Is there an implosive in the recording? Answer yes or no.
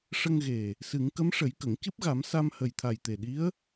yes